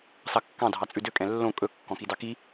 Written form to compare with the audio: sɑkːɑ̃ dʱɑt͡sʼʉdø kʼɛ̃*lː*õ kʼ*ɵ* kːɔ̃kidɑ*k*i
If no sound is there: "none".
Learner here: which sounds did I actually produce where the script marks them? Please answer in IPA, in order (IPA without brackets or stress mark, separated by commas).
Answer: lː, ɵ, k